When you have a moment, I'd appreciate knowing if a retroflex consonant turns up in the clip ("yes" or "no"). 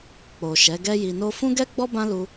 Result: no